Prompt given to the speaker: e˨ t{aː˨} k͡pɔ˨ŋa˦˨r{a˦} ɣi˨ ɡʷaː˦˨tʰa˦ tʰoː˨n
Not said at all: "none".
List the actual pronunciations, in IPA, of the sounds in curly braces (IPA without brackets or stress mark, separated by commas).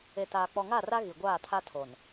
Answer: aː˨, a˦